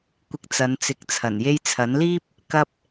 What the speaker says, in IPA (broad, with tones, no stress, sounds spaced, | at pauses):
kʷ ɪ˧ k̚ t͡s ɐ˨˧ n t͡s ɪ˨˥ k̚ t͡sʰ ɐ˨˩ n j e˧ j t͡sʰ ɐ˨˥ n l iː˥ p̚ | k ɐ˧ p̚